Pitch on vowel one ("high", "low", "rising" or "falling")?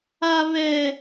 high